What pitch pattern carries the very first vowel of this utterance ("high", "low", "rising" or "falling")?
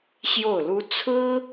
falling